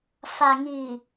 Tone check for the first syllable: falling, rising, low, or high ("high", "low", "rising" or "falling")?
low